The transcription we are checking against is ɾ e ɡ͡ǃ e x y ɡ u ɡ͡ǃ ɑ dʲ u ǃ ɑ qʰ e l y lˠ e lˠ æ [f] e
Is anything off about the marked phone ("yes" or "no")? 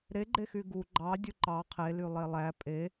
yes